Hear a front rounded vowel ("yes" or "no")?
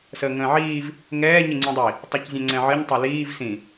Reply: yes